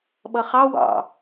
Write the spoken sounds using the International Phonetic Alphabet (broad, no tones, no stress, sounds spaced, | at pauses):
ɓ ʌ χ ɑ w ɑ̰